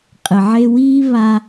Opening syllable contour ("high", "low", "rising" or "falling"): low